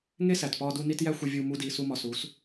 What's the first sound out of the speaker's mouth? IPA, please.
ŋ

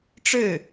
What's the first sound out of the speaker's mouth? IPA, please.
ʈ͡ʂ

